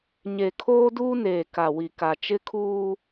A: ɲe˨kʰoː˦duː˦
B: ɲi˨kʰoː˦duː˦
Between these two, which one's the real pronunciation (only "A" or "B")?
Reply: A